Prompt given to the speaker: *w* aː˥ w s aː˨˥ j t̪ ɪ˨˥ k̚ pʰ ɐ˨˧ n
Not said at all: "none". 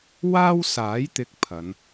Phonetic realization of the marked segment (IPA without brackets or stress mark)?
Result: w